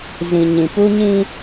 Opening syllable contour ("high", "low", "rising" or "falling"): low